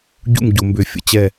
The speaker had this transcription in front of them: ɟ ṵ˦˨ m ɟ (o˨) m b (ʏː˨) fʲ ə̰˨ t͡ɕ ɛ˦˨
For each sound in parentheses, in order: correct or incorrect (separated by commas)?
correct, correct